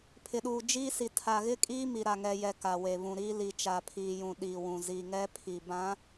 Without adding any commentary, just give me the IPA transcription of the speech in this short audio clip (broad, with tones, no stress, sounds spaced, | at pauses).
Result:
pʰ ɪ˨ ɗ uː˨ d͡ʒ iː˦ s i˨ tʰ a˨ ɣ ɪ˦ kʼ iː˦ m i˨ ɾ a˨ ŋ ɛ˨ j ɛ˨ k a˨ w e˨ β ũ˨ ɾ iː˦ l i˨ t͡ʃ a˨ pʰ iː˨ j ũ˨ ɗ iː˨ w ũ˨ z i˨ ŋ ɛ˦ pʰ i˨ b ã˨˦